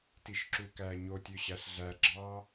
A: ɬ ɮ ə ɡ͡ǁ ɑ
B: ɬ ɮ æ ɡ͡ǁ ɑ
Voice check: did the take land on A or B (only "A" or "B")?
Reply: B